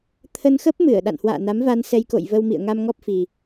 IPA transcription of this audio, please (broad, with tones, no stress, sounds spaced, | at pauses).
t̪ʰ ə˧ n x ə˦˥ p̚ m ɨ˧˩ ə̯ ɗ a̰˧˨ n h w a̰ː˧˨ n a˨˦ m v a˧ n s ɛ˧ j k o̰˧˨ j v ə˧ w m ḭ˧˨ ə̯ ŋ a˧ m ŋ ɔ˦˥ p̚ f i˨˩